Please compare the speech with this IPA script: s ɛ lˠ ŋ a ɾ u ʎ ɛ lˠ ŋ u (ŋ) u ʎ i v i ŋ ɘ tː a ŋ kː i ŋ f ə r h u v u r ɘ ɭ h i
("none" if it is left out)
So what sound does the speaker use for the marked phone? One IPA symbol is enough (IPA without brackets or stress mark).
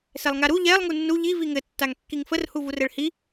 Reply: nː